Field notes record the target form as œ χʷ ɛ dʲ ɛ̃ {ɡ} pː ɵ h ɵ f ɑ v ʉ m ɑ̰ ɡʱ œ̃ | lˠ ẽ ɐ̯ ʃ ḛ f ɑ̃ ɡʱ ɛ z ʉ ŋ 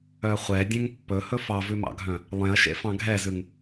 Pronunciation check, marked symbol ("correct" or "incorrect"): incorrect